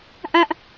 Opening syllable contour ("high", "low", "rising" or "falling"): high